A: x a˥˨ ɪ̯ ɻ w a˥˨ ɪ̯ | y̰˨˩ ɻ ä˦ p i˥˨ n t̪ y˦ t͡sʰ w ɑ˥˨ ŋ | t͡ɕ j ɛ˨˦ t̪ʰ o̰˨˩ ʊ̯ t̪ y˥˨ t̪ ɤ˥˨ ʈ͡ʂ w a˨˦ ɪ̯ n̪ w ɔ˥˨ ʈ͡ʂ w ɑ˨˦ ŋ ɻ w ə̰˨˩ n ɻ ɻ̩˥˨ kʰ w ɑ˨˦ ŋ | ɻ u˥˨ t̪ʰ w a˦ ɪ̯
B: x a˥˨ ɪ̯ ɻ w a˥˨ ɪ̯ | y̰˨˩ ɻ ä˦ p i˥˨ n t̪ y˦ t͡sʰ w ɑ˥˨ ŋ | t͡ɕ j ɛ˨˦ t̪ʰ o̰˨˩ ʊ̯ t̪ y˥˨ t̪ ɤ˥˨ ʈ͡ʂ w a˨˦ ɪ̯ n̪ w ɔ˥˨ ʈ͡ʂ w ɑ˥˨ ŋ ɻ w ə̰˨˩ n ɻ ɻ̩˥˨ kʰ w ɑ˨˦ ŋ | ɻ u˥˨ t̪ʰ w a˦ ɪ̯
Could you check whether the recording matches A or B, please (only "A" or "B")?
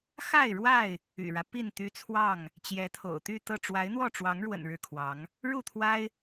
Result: A